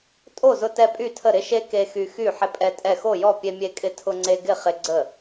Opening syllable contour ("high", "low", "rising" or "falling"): falling